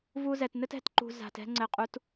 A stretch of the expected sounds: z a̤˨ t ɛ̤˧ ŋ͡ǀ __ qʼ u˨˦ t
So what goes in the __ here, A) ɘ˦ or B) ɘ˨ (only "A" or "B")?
B